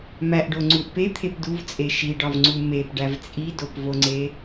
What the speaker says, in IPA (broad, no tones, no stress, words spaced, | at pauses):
mæʔɖo ŋ͡ǀuʔpe t̪ʰepduvt͡sʼe ʃiɖɒv ŋ͡ǀumepɖæv t͡sʼidopvoŋ͡ǀe